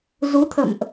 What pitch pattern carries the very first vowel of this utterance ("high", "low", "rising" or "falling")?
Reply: rising